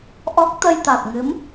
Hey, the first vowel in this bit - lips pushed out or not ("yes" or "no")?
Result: yes